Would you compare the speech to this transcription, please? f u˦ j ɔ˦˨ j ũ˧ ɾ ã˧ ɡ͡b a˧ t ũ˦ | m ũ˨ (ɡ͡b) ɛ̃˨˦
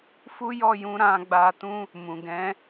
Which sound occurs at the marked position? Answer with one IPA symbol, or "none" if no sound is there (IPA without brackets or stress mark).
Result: ɡ